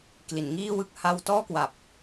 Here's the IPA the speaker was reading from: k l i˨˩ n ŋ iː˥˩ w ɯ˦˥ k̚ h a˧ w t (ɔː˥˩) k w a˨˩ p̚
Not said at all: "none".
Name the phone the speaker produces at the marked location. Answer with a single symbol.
ɔː˥˩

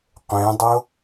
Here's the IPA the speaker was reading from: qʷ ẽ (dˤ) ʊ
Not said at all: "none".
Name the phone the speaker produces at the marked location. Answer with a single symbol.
dˤ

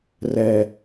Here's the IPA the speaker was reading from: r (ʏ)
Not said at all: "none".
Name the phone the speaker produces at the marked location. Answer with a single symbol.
ɛ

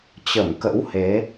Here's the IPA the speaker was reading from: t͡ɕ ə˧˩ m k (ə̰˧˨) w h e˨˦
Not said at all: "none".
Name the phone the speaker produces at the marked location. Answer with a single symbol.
ə̰˧˥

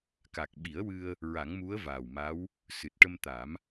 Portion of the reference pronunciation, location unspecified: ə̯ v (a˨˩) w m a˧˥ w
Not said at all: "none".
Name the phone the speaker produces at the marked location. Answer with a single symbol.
aː˨˩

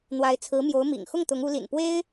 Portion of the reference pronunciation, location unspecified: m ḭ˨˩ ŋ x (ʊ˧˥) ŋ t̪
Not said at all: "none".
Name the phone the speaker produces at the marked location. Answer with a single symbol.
ʊ˥˩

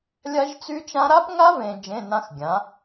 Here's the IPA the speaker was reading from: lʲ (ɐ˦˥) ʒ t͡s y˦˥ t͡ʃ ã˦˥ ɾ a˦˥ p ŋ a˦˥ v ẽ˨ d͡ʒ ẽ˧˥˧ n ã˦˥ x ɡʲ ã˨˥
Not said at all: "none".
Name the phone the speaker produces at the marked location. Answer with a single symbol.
a˦˥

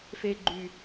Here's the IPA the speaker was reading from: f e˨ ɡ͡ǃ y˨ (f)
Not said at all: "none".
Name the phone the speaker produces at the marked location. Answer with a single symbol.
none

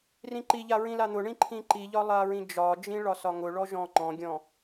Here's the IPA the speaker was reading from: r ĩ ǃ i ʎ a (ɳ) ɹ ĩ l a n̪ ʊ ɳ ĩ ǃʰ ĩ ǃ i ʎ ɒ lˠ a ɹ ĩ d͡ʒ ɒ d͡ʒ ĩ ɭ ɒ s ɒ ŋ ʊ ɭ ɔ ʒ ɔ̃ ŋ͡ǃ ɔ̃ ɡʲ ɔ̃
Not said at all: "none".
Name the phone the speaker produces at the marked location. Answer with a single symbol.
none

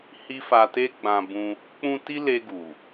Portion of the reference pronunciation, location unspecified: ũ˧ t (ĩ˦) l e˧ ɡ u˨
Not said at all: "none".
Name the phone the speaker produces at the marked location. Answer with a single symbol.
i˦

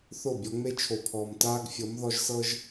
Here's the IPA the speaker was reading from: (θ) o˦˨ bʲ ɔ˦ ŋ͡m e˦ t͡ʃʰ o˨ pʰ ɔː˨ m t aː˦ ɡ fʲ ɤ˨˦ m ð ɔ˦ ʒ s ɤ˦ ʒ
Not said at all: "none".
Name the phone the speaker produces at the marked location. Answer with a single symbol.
θ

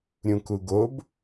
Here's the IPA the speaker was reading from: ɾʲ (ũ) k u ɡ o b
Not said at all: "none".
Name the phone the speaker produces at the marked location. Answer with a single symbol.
ũ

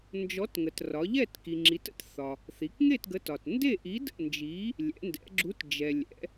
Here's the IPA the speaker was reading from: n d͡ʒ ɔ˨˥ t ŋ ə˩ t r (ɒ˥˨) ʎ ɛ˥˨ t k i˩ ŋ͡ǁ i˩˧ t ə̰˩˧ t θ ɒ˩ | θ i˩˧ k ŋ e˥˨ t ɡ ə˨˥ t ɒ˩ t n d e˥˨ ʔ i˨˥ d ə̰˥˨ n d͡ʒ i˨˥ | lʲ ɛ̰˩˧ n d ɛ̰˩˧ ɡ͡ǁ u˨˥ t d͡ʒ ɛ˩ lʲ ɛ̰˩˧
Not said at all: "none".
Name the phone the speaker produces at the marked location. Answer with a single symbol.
ɒ˩˧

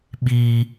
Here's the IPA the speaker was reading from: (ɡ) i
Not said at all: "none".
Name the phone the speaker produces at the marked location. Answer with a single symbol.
ɓ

